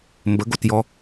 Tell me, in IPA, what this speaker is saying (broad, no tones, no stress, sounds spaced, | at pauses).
m b ə ɡ o t j ɔ